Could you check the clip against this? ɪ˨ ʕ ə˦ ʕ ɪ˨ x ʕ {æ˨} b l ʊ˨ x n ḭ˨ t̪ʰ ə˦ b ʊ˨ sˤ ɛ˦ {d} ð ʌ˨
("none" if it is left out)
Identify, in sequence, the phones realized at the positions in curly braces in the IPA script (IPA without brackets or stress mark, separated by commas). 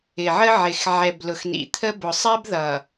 ɛ˨, b